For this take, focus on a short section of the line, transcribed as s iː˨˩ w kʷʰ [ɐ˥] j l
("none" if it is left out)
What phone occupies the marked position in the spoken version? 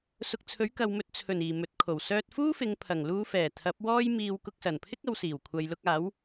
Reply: ɐ˨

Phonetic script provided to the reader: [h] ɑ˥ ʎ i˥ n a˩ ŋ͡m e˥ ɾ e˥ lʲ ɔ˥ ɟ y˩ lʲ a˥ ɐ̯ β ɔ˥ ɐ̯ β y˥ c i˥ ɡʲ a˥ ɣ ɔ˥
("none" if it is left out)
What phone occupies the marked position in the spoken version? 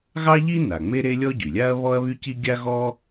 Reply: ɣ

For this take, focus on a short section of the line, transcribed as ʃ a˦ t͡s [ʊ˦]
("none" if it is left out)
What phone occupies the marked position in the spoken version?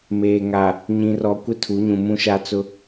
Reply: ʊ˦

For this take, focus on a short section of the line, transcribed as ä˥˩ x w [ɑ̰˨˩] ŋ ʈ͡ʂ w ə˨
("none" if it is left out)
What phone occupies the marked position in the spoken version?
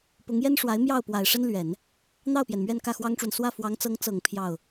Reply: ɑ˥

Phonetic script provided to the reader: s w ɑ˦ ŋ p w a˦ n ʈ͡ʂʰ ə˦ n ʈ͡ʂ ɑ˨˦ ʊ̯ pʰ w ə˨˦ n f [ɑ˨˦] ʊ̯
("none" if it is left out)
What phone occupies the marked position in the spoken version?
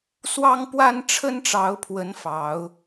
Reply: ɑ˨˦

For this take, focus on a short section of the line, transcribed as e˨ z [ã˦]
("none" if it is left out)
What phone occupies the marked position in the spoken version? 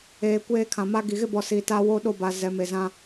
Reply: ã˦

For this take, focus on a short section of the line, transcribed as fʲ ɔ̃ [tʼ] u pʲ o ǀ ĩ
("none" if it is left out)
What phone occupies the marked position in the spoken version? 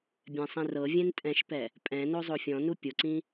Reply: n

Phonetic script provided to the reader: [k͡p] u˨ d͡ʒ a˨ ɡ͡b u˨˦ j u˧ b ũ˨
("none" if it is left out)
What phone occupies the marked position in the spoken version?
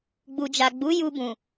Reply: ɡ͡b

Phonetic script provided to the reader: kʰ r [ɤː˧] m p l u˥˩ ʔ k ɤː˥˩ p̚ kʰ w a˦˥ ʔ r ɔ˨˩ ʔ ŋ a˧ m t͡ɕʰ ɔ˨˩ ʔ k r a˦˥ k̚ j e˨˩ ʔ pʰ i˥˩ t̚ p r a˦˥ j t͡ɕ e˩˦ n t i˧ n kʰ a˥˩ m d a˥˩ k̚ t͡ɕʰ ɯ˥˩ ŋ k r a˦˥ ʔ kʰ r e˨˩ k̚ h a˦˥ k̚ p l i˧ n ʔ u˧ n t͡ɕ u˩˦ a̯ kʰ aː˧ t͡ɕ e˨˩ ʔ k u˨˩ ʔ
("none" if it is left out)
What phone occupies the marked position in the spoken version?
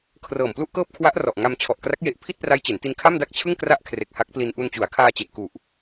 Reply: ɤː˨˩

